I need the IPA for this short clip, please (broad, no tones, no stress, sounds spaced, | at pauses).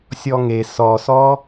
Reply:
sʲ ɔ ŋ e s ɔ s ɔ